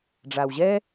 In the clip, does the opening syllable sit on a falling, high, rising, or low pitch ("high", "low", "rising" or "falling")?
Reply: low